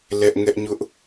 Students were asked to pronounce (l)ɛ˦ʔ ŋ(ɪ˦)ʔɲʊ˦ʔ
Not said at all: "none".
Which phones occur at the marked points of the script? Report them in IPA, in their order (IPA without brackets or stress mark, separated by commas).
l, ɛ˦